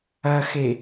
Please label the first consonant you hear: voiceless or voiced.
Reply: voiceless